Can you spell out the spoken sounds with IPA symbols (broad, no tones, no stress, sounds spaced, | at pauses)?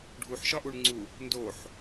ɖʱ u ħ ʃ ɒ ʔ u ɳ ŋ͡ǀ u | n d o ħ